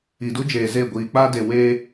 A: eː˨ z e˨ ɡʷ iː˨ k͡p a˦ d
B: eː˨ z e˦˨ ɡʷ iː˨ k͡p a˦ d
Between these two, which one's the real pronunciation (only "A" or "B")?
B